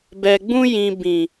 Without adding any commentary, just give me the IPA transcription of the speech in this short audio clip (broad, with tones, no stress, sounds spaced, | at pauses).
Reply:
b ɛ˨ ɡ͡b ũ˧ j ĩ˨ b ĩ˨